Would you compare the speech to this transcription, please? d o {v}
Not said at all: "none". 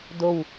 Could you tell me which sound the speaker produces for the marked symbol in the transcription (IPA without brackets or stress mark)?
w